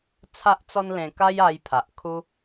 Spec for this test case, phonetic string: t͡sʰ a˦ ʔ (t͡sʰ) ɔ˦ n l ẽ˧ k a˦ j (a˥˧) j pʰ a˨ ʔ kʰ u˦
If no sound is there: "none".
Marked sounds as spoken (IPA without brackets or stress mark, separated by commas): t͡s, a˧